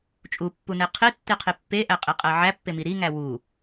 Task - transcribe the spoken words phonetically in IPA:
t͡ʃʼ u pː u n e qʰ i tː i qʰ i pː e ʔ æ qʼ i qʼ æ ʕ æ pː e m i ɾ i ŋ æ w u

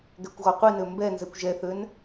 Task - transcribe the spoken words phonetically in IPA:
ɡ ɛ kʷ ɣ ɔ qʷ i n ø m b ɛ n z ɛ kʷ ʒ ɛ θ ø n

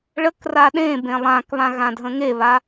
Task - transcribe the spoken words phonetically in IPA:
ɭ ə k r a ɗ ẽ b ẽ lˠ ã k β ã ɣ ã dʱ ə̃ ŋ e β a

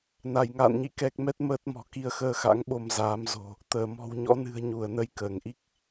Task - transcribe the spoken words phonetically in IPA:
n a˧˩ j ŋ a̰ː˧˨ n ɲ ḭ˧˨ k ɛ˦˥ k̚ m ɛ˦˥ t̚ m əː˦˥ t̚ m ɔ̤˨˩ k i˧ ə̯ x əː˧ x a̰˧˥ ŋ ɓ o˧ m z aː˨˦ m z o̤˨˩ | t̪ əː˧˩ m ɔ̤˨˩ w ɲ ɔ̰˧˥ n ɨ̤˨˩ ə̯ ɲ u˧˩ ə̯ n ə˧ j k əː˧˩ ŋ ʔ i˦˥ k̚

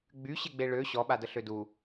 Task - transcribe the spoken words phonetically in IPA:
ɡ͡b y ɕ e ɡ͡b e ɭ ø ɕ ɔ ɓ a d ə ɬ ø d u

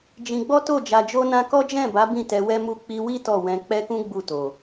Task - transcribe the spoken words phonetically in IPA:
d͡ʒ ĩ˧ ɡ͡b ɔ˦ t o˦˨ d͡ʒ a˧ d͡ʒ o˦ n ã˦ k ɔ˦ d͡ʒ ɛ̃˦˨ b a˨˦ b ĩ˦˨ t ɛ˧ w ɛ˦ m u˦˨ k͡p i˧ w i˦ t ɔ˦˨ w ɛ̃˧ k͡p ɛ˦ k ũ˦ ɡ͡b u˦˨ t o˨

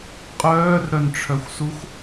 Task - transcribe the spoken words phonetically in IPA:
qʼ œː r ɾ œ n ʈ͡ʂʰ œ xʷ s u x

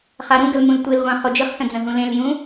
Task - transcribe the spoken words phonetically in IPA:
χ a ɾ ũ ɡ ə l m ũ l tʷ ɨ l ʁʷ ã χ o d͡ʒ ɨ χ s ə̃ d͡z ə̃ ɦ ũ l ẽ l j ũ

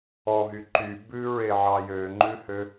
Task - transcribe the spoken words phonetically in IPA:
ɔ ɦ y ǃ y b ʉ ɹ e ʕ ɑ j ø ŋ͡ǃ ʉ h ø

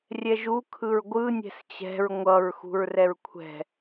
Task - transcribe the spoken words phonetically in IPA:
rʲ ɛ ʒ u kʰ ɯ ɹ ɡʷ ɯ nʲ ɛ̤ s t͡ɕ ɛ̤ ɹ ŋʷ ʌ ɹ x ṳ ɹ r ɛ ɹ kʷʰ ɛ̤

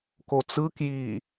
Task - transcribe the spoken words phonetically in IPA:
k o t͡s ɯ k j i

